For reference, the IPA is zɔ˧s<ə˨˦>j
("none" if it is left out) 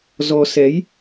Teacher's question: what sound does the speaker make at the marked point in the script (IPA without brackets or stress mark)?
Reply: ɛ˨˦